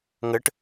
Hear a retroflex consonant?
yes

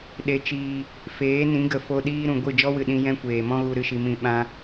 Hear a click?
no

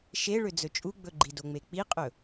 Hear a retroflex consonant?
yes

